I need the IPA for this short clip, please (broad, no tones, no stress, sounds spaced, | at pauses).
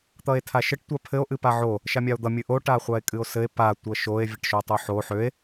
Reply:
t̪ ʌ e̯ tʰ a ʃ ɘ ʈ tʷ a pʰ ɘ o̯ ʔ ɨ p a ʕ o | ʃ a mʲ a o̯ d̪ ʌ mʲ ɨ ʔ o ʈ a χʷ a e̯ kʼ ɨ o̯ s ɘ e̯ p a tʷ ʌ ʃ o e̯ vʲ ɘ ʈ ʃ o tˤ o ħ o ħ ø e̯